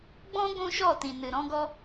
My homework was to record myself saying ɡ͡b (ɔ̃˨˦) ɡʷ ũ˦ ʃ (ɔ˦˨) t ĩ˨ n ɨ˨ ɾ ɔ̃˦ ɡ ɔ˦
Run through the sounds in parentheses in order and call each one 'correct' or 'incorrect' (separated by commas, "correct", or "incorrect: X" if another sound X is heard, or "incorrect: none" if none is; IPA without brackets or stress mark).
incorrect: ɔ̃˦, correct